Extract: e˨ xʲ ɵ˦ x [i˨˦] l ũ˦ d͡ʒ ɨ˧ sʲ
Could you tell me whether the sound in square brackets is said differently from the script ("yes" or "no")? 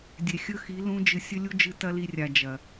no